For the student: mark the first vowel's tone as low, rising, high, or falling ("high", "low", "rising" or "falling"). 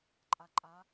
low